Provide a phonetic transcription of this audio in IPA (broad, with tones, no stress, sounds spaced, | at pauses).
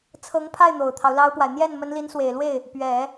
t͡sʰ ɤ˧˥ ŋ pʰ a˥˩ ɪ̯ n̪ o˨˩ ʊ̯ t̪ʰ ɑ˦ ʊ̯ l ɑ˥ ʊ̯ p w a˨ ɪ̯ n̪ j ɛ˥˩ n m ə˧˥ n l i˧˥ n s w e˨˩ ɪ̯ l w e˥˩ ɪ̯ | p ɥ ɛ˨˩˦